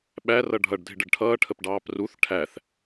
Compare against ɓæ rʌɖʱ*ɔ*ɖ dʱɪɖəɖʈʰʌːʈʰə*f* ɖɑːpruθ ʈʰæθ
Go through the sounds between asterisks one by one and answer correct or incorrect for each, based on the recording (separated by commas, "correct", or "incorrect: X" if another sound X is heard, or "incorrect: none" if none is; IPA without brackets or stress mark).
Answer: incorrect: ʌ, incorrect: p